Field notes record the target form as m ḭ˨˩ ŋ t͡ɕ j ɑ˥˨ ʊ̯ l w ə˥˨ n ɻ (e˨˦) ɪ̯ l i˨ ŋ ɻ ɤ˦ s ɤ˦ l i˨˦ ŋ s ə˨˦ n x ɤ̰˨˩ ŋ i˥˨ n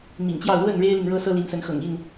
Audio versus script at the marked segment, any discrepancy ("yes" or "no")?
yes